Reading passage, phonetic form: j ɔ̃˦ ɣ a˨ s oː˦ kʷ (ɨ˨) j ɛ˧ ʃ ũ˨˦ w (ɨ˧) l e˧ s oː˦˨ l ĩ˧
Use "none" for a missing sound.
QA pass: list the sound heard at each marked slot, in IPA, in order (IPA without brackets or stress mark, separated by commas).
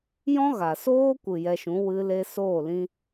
ɨ˨, ɨ˧